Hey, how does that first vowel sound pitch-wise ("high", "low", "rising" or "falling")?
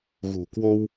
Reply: low